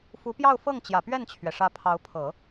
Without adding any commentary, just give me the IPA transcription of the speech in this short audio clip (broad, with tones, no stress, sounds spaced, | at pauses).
f u˧˥ p j ɑ˥˧ ʊ̯ f ɤ˥˩ ŋ t͡ɕ j ä˨˩ p ɥ ɛ˥˩ n t͡ɕʰ ɥ ɛ˩ ʂ ä˧˥ pʰ ɑ˧˥ ʊ̯ pʰ ɤ˨˩˦